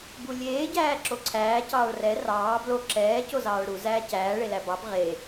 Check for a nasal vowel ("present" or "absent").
absent